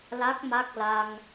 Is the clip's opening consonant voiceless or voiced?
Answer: voiced